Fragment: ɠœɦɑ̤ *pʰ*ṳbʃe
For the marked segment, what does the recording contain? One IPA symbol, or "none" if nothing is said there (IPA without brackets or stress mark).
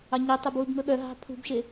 pʰ